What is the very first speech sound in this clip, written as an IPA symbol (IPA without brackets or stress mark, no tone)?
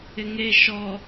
ɪ